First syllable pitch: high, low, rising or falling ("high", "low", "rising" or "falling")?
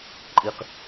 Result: low